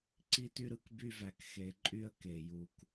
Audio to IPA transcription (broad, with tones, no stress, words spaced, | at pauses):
ǀi˦ty˦ɾɯ˧k by˦væ˧k xe˧ǃʼy˦ə̯ke˨ ju˧k